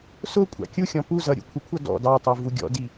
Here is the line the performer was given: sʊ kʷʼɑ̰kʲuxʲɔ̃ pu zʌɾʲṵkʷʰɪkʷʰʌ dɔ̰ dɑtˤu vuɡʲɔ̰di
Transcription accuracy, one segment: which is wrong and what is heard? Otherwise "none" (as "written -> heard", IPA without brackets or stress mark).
none